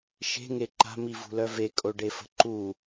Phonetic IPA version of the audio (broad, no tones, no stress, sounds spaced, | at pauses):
ʃ e̤ ŋ e ǃ a̤ m i v ṳ l œ v e kʼ o ɖ e f ə̤ ǃ u